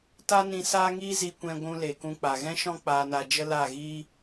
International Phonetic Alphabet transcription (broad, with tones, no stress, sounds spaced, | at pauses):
t a˦ n ĩ˧ s aː˦ ŋ iː˦ z i˧ kʷ ɛ̃˧ ɡʷ ũ˧ l e˨ k ũ˧ k͡p a˨ ɣ ɛ̃˦ ʃ ɔ̃˦ k͡p aː˧ n a˧ d͡ʒ ə˦ l a˦˨ ɣ iː˦